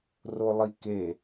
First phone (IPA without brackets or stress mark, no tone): r